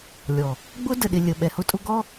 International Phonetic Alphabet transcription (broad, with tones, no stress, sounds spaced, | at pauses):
lʲ ɔ˨ | ɡ͡b ʊ˦ d ə˨ ɗ ɪ˨ lʲ ə˨ ɓ ɛ˨ h ʊ˦ tʼ ʊ˦ ɡ ɔ˦